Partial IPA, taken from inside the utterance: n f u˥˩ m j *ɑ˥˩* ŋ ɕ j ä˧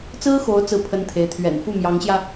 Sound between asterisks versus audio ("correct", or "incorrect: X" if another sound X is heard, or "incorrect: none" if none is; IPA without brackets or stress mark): incorrect: ɑ˧˥